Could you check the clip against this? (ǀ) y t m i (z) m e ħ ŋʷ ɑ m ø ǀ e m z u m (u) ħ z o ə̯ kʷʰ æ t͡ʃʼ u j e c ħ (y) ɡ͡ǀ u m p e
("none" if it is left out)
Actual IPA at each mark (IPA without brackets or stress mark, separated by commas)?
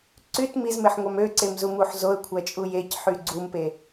ǀ, z, u, y